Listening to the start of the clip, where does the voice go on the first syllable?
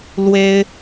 high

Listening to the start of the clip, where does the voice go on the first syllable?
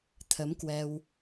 rising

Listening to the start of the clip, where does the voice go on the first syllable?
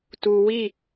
low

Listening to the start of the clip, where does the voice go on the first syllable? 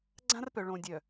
high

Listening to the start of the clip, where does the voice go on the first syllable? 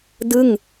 falling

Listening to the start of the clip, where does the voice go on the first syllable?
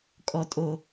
low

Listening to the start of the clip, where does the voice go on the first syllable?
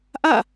falling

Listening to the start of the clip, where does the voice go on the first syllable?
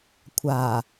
low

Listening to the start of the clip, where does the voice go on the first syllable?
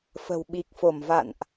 low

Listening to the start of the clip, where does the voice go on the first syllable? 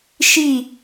falling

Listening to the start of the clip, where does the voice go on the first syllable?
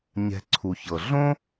low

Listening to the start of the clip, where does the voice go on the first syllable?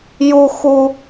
high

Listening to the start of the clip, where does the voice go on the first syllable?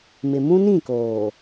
low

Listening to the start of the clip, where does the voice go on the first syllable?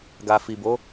low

